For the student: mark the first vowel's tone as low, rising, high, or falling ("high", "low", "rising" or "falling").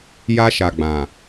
high